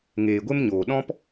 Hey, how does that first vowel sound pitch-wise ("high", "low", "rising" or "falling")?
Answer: low